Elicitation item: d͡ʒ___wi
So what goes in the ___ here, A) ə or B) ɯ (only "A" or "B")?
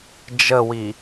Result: A